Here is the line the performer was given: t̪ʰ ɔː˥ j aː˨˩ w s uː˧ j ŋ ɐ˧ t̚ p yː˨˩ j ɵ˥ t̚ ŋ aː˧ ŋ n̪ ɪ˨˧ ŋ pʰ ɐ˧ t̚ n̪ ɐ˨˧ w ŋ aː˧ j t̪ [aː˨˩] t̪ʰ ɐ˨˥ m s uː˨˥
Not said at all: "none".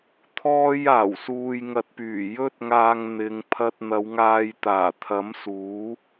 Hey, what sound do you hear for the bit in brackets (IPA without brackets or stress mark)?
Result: aː˨˩